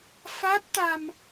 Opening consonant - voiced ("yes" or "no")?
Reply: no